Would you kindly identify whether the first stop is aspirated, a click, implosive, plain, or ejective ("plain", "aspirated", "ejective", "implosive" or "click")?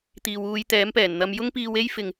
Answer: plain